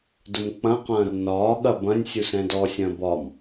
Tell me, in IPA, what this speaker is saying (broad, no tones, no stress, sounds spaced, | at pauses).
d ʊ m k͡p ɐ̃ q ɐ̃ː r n ɒː ɠ ɐ b ɐ̃ nʲ sʲ u s ɛ̃ d ɔ sʲ ɐ̃ː b ɒ m